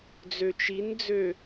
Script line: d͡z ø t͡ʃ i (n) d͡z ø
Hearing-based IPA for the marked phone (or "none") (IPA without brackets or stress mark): n